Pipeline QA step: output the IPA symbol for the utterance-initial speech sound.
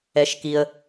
ɛ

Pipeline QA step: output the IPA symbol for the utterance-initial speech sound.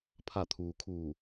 pʰ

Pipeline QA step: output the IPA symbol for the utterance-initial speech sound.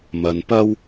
m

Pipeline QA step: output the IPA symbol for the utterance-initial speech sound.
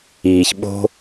iː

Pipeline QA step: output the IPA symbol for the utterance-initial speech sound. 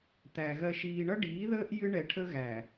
t̪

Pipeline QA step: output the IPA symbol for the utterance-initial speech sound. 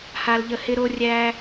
h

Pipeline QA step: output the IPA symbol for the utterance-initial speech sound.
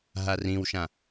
ɦ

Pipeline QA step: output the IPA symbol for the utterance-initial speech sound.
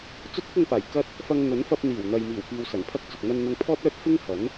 t͡s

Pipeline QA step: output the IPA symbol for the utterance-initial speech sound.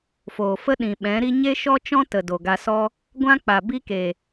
f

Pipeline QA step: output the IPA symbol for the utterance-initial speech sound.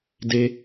d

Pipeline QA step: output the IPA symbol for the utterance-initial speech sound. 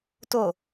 t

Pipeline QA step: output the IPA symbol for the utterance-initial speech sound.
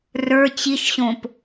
r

